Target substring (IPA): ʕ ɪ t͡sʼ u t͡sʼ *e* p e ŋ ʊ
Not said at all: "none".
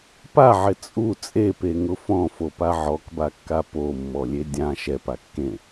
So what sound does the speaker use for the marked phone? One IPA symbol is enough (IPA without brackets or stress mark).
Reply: e